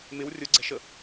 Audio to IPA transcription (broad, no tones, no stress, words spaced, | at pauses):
mɪw rʲʊɡ͡ǀɛ̤ʃə